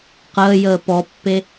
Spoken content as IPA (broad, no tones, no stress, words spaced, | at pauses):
qəːjəː pɔpːe